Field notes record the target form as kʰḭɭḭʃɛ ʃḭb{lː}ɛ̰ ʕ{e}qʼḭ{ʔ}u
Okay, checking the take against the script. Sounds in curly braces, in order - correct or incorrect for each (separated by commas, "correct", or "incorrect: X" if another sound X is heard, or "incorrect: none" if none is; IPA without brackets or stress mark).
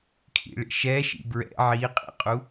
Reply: incorrect: ɹ, incorrect: i, incorrect: qʼ